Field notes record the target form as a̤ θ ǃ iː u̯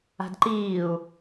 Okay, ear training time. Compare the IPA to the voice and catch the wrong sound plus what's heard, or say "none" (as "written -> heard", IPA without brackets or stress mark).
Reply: θ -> d